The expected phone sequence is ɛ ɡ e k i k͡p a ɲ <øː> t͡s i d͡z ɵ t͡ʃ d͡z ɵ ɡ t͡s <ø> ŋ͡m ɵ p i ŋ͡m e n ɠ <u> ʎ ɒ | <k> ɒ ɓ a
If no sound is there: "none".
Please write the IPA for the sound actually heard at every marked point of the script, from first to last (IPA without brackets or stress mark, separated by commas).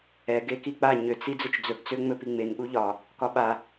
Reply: ø, ø, u, k